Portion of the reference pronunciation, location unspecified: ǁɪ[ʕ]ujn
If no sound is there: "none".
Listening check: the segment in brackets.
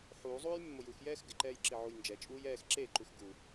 ʕ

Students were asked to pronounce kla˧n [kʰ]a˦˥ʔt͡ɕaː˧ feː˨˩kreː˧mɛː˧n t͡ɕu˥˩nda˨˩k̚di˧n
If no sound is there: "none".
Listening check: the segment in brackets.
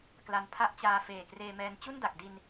pʰ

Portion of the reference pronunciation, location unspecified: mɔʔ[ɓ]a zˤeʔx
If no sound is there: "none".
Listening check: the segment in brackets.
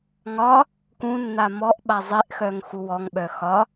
ɓ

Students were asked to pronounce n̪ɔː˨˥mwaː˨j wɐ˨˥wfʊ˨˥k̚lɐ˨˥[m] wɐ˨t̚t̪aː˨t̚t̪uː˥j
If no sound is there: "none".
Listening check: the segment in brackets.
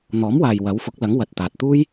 ŋ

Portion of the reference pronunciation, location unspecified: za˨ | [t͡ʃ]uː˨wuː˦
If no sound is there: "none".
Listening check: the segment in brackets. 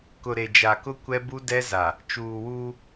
t͡ʃ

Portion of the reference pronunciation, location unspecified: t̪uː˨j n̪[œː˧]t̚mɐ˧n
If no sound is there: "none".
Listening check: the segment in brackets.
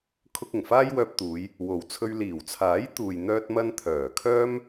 œː˧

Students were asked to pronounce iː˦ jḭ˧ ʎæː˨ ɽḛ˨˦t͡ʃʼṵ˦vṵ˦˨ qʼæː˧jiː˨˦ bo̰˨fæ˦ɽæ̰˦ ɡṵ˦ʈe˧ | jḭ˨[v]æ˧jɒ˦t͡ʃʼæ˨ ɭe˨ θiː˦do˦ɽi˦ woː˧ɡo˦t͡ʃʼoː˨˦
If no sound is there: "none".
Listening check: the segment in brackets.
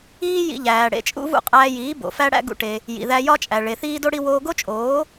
ð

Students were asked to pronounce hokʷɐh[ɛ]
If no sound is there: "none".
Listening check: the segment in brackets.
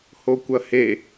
e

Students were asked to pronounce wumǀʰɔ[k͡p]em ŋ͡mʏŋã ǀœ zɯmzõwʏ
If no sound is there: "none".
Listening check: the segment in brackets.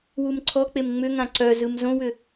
k͡p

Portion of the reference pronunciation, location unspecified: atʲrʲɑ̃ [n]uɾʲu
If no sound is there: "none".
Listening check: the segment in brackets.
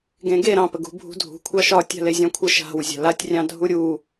dʱ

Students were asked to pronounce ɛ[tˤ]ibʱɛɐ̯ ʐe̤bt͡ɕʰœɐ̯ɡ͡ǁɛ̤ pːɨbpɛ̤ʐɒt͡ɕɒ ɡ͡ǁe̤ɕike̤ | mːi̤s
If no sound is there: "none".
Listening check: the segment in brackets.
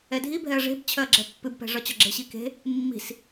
dʱ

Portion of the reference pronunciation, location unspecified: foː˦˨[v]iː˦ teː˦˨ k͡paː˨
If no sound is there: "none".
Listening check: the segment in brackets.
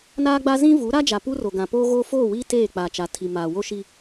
w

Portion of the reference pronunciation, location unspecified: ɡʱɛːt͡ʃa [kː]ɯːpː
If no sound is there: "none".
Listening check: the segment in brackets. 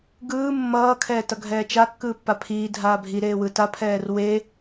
kː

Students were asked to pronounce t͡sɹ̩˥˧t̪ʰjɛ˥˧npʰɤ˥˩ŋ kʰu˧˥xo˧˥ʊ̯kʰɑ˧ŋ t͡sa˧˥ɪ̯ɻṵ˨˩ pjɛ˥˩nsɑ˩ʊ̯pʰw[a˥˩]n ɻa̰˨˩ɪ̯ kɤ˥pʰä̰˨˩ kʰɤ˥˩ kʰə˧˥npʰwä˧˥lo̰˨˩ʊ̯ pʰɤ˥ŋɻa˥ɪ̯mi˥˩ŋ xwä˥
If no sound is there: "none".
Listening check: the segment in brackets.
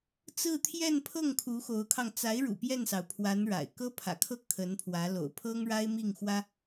a˧˥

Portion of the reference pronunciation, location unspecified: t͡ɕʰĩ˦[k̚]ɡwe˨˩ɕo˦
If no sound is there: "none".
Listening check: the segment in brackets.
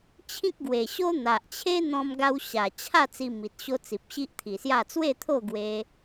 k̚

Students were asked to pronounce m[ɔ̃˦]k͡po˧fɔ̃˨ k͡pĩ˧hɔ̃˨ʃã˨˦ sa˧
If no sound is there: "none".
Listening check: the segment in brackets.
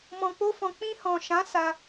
ɔ̃˨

